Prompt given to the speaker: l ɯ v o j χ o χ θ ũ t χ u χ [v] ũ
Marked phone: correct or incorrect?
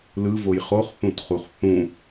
incorrect